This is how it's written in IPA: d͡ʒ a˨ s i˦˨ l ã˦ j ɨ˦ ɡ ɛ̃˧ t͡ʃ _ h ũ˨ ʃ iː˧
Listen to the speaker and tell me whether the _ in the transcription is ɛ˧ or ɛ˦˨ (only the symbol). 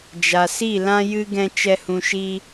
ɛ˧